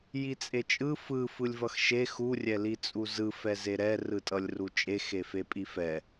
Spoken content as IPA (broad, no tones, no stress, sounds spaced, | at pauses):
j i t͡sʼ e t͡ʃʼ ɯ f ɯ f ɯ lʲ v ʌ x ʃ e x u rʲ ɛ l i t͡sʼ u z ɯ f ɛ z e ɾ ɛ r ɯ tʼ ʌ lʲ r u t͡ʃʼ e x e f e pʼ i f ɛ